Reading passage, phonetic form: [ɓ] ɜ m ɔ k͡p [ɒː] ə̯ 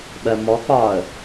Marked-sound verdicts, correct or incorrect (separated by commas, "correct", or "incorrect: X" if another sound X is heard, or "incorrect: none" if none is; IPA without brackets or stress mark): correct, correct